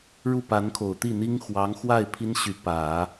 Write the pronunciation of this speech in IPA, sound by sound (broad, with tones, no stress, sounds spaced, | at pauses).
ɻ u˥˩ p a˧˥ n kʰ o˨˩ ʊ̯ t̪ i˥˩ n̪ i˥ ŋ x w ɑ˧˥ ŋ x w a˥˩ ɪ̯ pʰ i˥ n ɕ y˧˥ p ä˨˩˦